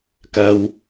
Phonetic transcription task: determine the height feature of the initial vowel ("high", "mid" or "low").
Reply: low